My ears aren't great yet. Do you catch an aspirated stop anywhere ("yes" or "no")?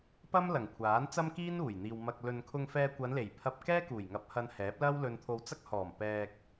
yes